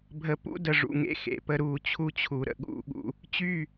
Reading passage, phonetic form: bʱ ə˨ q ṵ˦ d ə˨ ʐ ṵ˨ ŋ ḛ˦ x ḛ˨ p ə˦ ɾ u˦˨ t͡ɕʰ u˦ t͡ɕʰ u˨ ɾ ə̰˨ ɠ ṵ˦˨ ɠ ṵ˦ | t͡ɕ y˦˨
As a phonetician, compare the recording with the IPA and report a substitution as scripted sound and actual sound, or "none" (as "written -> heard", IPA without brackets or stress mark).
q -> p